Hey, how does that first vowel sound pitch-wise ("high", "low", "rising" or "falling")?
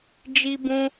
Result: high